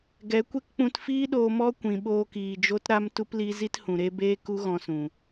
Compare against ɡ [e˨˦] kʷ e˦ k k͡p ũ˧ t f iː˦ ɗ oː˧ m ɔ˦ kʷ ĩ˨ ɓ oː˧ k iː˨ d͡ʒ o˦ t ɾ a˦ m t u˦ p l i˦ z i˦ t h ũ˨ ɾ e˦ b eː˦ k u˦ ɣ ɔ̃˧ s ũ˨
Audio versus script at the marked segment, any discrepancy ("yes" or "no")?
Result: yes